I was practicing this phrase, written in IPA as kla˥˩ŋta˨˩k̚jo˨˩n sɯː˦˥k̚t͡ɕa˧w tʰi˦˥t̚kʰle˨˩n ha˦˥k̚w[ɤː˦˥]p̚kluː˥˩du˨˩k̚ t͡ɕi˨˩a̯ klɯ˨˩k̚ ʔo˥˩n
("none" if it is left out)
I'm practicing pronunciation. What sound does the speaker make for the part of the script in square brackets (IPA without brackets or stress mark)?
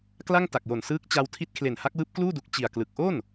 ɯː˦˥